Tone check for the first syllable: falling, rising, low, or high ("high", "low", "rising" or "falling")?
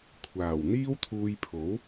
low